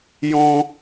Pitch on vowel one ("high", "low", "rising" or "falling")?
high